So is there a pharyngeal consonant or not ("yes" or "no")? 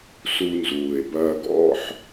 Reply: yes